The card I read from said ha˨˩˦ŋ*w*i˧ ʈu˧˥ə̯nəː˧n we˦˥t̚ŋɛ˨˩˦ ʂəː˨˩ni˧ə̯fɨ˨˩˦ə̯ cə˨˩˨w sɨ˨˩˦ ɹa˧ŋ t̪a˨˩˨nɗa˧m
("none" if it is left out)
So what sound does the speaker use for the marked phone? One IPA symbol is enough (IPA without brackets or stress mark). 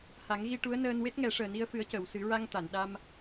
ɣ